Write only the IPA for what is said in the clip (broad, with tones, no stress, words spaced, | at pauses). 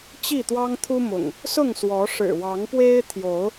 t͡ɕi˥˨t̪wɑ˦ŋ t̪ʰu˦mʊ̰˨˩ŋ | sʊ˥˨ŋswɔ˨˦ ʂɻ̩˨˩ wɑ˨˦ŋpwe˦ɪ̯t̪ʰjo˨˦ʊ̯